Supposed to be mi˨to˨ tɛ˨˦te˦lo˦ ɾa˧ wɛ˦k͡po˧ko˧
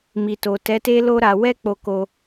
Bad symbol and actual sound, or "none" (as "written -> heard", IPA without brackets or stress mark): none